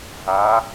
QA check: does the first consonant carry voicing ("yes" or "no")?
yes